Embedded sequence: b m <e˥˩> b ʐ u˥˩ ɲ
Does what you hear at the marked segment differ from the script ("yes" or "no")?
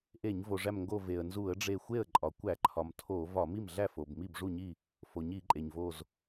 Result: yes